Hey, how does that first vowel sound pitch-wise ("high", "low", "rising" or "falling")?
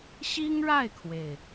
high